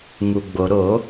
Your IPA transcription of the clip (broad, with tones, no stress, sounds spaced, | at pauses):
ŋ u˩ ɡ͡b o˩ ɾ o˧˩˧